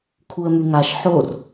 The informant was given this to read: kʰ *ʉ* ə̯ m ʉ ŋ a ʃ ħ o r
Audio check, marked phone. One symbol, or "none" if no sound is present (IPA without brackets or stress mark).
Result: u